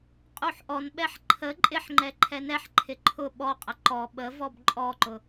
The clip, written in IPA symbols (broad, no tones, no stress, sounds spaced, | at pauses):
qʼ u ħ ʔ ɔ n ɓ ɛ ħ ǃʰ ə ǃʼ ɪ ħ ŋ͡ǃ ɛ ǃʰ ɛ n ɛ ħ ǃʰ ɪ ǃʰ ʊ ɓ ɔ qʼ ə ǃ ɔ ɓ ə v ɔ b ǃʼ ɔ ǃ ʊ